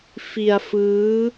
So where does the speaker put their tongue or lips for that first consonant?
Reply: lips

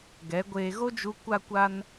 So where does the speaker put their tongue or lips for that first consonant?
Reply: velum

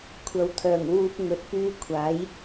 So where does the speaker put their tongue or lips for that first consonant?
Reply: velum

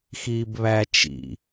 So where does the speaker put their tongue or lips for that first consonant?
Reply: velum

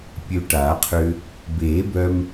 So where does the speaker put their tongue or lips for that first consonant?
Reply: lips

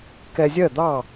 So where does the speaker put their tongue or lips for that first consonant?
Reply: velum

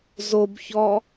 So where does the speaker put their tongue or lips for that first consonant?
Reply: tongue tip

